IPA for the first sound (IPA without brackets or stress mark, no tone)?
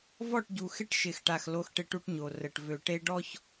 v